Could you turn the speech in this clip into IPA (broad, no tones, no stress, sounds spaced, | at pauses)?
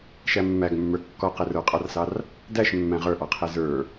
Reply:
ʃ æ mː æ ɡ mː ə˞ kː ɔ q ɛ r ə˞ qʼ ɑ r s ɑ r | d æ ʃ mː æ̃ ʁ ə˞ ʔ ɑ qʰ ɛ z ə˞